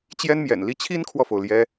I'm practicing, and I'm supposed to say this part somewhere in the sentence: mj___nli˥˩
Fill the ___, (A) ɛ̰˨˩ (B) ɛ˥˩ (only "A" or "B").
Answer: A